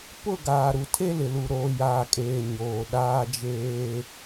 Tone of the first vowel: falling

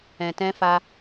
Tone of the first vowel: low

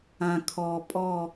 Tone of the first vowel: low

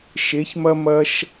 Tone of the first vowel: rising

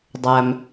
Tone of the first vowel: low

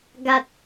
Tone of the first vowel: low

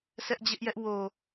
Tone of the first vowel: high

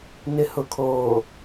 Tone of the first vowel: low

